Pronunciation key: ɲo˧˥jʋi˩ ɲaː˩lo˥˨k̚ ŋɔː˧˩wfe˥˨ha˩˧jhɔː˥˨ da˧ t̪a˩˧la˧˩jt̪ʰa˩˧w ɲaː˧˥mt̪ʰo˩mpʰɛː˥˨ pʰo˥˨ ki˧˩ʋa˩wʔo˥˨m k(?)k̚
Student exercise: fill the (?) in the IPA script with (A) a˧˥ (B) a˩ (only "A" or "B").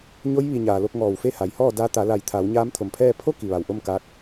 A